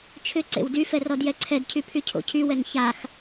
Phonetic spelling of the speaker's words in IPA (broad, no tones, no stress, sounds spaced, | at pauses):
t͡ʃʰ ʏ ǀ ḛ w d y f ɛ r ɔ d j ɛ ǀʰ ɛ d cʰ y pʰ y cʰ o̰ cʰ y w ɛ ŋ ç a x